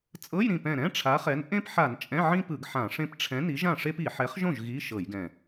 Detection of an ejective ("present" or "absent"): present